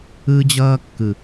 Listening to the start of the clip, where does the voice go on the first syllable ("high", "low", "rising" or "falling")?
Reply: high